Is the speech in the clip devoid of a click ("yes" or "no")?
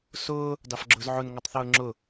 no